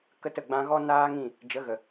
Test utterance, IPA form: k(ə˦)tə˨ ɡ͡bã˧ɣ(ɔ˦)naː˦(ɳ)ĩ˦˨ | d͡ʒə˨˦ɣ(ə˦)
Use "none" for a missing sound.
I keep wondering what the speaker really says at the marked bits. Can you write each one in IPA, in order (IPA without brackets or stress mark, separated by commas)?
ə˦, ɔ˦, ŋ, ə˨